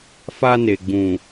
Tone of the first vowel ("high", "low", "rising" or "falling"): high